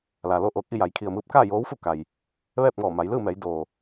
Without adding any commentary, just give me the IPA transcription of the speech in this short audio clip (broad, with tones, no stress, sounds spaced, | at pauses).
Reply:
l aː˩ l o˥˨ ʔ oː˧ k̚ ʔ i˥˨ j a˩˧ j kʰ i˩ ə̯ m ɯː˧ p̚ k aː˥˨ j oː˧˥ w f u˥˨ k a˩ j | ʋ ɛː˥˨ p̚ ŋ ɔː˧˩ m a˩˧ j l ɯː˥˨ m ɛː˩˧ j d o˩